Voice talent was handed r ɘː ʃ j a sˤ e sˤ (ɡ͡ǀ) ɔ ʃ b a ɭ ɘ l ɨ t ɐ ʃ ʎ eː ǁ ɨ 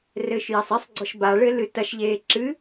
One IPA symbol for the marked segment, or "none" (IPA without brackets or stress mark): ɡ͡ǀ